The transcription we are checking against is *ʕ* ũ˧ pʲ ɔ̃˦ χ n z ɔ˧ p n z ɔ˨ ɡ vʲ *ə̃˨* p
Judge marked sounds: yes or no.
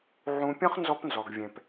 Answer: yes, no

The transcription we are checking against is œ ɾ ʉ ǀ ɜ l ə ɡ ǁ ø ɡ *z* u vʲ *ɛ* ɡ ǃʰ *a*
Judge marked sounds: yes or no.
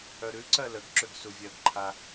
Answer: no, no, yes

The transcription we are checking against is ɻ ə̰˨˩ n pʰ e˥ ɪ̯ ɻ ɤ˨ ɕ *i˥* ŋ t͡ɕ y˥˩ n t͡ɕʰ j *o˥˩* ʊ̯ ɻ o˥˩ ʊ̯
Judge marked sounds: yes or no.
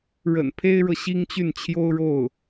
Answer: yes, no

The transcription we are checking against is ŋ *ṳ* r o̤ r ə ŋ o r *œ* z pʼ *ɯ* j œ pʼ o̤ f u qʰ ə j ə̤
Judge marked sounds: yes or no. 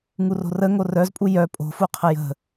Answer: no, yes, no

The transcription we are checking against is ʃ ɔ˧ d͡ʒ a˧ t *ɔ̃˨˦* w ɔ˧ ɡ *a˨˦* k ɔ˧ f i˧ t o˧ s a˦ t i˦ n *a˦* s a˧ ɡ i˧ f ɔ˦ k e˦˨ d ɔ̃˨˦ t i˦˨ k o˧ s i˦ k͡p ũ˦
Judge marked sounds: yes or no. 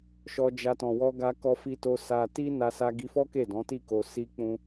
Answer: no, no, no

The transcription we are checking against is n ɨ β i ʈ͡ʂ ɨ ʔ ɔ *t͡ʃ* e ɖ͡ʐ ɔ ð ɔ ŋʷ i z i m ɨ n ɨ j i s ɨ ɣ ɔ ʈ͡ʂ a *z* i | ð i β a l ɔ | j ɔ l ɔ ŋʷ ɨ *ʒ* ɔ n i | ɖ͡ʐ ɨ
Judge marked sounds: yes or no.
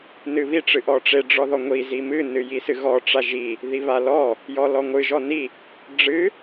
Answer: no, no, yes

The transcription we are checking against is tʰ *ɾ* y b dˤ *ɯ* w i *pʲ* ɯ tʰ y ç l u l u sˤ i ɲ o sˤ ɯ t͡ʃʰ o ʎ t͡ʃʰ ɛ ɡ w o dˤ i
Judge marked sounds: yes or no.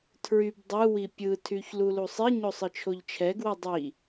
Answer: no, yes, yes

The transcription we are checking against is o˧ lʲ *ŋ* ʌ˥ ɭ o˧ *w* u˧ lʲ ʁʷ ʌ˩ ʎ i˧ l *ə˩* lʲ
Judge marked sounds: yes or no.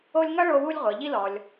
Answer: yes, yes, no

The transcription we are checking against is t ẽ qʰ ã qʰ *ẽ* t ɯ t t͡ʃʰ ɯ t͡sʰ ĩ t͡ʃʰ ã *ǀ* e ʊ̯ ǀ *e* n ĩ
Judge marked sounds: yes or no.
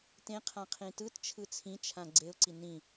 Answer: no, no, no

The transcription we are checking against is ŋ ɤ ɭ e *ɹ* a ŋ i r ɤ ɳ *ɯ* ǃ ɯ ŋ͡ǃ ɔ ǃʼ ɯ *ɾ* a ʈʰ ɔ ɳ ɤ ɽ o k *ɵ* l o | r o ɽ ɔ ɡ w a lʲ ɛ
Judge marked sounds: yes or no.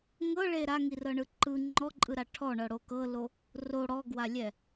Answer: no, yes, yes, no

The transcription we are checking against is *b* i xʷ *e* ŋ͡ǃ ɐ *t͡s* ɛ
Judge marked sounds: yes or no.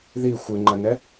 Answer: no, no, no

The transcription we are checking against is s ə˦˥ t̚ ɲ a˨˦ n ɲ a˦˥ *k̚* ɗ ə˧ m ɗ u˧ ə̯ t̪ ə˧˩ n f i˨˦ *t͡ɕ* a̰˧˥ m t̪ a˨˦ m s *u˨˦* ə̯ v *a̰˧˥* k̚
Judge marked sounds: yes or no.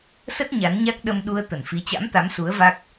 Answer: yes, yes, yes, no

